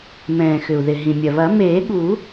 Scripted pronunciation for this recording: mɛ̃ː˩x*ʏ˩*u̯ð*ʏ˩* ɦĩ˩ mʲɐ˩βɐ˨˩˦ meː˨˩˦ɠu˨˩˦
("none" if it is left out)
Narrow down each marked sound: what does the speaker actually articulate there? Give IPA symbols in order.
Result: ʏ˩, ɪ˩

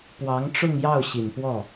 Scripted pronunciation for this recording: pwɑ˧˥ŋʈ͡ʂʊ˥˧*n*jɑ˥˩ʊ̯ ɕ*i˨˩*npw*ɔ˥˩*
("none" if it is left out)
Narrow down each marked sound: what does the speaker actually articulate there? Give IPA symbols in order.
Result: ŋ, i˨˩, ɔ˥˩

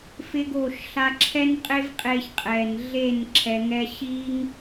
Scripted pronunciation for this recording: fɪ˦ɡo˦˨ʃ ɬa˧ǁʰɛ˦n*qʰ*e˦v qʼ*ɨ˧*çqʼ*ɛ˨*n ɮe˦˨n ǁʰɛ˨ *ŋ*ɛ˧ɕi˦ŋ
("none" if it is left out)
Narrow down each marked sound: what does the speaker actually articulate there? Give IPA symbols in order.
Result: qʼ, e˧, ɛ˨, ŋ

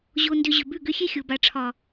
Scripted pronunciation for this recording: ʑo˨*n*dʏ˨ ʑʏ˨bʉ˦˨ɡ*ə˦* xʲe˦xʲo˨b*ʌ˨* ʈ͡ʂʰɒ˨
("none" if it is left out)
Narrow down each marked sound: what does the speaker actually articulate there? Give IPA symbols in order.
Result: n, ʏ˦, a˨

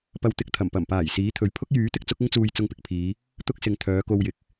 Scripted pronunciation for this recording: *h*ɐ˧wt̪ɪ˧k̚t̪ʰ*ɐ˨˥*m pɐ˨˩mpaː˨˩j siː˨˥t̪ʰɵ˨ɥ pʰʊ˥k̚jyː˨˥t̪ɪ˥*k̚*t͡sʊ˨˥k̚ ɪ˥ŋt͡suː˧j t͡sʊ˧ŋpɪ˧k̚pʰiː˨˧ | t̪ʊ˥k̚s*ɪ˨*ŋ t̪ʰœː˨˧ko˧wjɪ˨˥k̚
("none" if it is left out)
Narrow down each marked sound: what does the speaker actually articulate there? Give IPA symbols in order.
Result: p, ɐ˨˩, k̚, ɪ˨

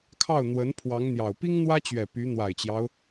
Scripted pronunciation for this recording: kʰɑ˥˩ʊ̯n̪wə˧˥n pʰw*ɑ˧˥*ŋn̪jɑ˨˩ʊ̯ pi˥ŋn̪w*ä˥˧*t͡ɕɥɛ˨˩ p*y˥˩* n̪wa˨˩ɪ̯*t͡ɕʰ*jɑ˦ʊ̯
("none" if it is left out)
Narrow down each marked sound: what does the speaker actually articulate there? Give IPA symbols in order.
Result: ɑ˧˥, ä˥, y˧˥, t͡ɕ

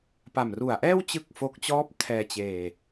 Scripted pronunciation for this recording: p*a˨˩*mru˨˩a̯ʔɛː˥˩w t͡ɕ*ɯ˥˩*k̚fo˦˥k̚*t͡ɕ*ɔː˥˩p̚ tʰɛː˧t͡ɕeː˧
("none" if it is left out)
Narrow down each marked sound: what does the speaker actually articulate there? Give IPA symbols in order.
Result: a˨˩, ɯ˥˩, t͡ɕ

